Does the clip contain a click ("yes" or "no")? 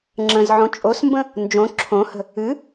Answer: yes